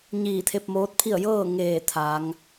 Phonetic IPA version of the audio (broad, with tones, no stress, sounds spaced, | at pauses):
ɲ iː˧˩ t̪ʰ e˧ p̚ m oː˧˥ t̚ pʰ i˥˨ ə̯ j ɤː˥˨ ŋ eː˧˩ t̪ʰ a˩˧ ŋ